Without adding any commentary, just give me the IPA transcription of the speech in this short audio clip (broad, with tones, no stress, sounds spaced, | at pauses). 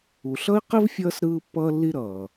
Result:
u˨ ɬ ʌ˥ i̯ q i˥ v fʲ ʌː˦ s ɾ ɯː˦ pː ʌː˦ lː i˦ ɾ ʌː˩